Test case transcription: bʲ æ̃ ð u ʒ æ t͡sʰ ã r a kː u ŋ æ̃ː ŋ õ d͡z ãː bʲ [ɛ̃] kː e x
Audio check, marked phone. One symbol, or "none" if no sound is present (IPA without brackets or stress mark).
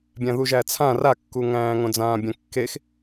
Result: ɛ̃